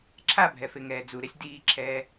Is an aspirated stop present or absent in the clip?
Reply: present